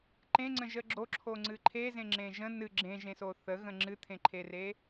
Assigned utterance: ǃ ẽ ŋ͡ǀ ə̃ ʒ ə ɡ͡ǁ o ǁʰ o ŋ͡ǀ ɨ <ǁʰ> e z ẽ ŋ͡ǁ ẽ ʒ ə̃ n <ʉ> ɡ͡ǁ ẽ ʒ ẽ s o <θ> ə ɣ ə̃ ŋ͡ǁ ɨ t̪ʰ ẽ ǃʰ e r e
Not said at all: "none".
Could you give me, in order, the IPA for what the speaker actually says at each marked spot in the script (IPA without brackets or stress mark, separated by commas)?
ǃʰ, ɨ, θ